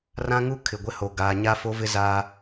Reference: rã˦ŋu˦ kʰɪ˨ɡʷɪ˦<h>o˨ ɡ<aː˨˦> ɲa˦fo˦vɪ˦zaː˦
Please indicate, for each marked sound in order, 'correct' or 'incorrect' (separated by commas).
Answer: correct, incorrect